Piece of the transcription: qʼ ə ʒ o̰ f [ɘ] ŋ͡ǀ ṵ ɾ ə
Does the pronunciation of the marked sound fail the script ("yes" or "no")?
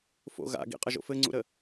no